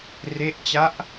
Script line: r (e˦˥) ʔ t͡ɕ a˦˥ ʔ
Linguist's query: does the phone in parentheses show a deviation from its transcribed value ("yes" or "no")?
no